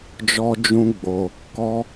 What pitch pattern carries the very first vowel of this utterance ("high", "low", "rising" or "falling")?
high